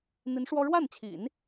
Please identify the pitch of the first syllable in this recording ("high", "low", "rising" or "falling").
rising